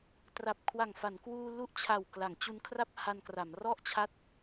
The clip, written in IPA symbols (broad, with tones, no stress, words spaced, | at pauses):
tra˨˩p̚kʰwa˨˩ŋ fa˩˦nkwuː˧ lu˦˥ʔt͡ɕʰa˨˩w kla˩˦ŋt͡ɕu˧nkʰra˥˩p̚ ha˧nkra˩˦m rɔ˥˩ʔt͡ɕʰa˦˥t̚